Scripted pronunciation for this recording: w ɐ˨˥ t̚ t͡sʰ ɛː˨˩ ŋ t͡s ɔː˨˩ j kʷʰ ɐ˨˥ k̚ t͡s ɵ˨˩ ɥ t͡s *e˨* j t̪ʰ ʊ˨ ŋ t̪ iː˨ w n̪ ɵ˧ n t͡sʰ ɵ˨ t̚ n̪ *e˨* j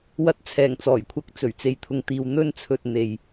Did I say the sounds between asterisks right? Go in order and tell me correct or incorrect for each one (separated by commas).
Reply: correct, correct